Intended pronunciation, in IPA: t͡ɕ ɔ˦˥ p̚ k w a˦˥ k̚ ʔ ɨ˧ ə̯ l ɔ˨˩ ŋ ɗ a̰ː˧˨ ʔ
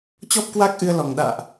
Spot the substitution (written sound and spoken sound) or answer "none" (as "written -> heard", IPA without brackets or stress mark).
none